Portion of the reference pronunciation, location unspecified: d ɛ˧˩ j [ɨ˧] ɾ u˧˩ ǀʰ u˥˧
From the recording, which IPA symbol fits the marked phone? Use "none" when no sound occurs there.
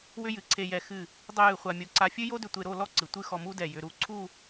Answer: ʏ˧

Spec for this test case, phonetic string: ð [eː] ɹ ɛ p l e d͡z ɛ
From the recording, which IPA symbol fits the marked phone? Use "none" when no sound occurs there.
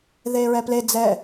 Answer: eː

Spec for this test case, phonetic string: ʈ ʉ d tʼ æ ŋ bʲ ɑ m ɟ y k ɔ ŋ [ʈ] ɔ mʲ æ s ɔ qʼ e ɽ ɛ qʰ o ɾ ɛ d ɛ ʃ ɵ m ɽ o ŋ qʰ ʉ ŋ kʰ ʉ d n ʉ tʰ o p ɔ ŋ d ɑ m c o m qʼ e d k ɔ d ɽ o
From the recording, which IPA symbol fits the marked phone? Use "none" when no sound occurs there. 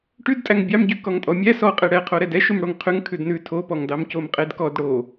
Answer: tʼ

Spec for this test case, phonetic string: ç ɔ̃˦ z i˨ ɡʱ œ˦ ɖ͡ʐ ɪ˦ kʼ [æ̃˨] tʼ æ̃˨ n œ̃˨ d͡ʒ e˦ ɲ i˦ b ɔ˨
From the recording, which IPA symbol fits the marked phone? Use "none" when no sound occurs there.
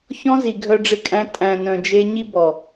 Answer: æ̃˦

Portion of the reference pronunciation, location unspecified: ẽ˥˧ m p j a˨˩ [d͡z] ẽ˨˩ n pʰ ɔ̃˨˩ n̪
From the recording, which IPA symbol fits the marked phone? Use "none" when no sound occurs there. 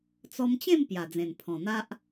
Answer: d͡z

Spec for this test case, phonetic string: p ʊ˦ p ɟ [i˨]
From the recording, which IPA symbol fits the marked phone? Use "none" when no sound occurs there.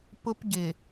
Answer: ɪ˨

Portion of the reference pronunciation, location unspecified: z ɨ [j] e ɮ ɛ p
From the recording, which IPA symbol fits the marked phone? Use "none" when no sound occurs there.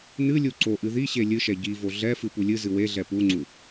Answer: w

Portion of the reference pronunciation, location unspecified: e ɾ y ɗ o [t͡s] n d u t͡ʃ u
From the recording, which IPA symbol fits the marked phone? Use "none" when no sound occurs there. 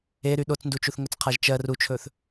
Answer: t͡s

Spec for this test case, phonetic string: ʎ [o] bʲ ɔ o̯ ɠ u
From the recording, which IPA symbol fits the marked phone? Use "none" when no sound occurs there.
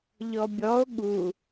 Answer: ɔ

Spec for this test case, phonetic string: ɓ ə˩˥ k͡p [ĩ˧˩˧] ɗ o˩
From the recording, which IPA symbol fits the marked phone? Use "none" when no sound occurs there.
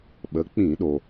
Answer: ĩ˧˩˧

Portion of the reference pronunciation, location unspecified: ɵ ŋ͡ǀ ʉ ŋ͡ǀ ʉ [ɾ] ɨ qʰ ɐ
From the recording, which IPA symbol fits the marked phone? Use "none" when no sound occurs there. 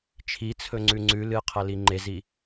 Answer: l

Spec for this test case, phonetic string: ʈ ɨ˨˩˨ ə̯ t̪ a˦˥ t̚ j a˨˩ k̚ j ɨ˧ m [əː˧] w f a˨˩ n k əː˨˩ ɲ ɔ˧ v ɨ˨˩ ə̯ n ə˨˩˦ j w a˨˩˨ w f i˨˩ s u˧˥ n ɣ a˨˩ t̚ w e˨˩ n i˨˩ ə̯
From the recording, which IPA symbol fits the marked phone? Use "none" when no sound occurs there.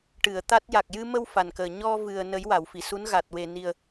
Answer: ə˧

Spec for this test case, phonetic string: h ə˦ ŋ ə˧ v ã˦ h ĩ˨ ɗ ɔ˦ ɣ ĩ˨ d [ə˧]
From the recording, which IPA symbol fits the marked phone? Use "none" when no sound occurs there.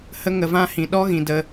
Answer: ə˧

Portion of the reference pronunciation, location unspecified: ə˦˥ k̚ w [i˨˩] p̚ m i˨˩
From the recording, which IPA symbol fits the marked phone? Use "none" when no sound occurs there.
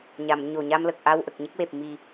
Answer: e˨˩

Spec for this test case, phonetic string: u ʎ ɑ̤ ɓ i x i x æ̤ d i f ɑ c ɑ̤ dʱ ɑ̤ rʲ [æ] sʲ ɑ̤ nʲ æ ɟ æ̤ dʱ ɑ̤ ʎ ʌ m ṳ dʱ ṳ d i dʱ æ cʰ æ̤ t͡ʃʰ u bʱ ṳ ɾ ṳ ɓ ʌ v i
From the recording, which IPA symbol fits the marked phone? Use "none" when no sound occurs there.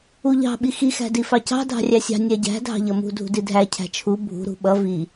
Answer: æ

